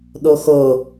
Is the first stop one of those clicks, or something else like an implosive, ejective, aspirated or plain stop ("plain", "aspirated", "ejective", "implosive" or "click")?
implosive